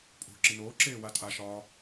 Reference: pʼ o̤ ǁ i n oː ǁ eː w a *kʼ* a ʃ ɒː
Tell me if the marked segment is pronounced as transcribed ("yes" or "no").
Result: no